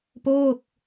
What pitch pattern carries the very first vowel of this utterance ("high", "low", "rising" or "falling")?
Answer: falling